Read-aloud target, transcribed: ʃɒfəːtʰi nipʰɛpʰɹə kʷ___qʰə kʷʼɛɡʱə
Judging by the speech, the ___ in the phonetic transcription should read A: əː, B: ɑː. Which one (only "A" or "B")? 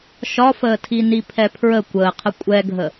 A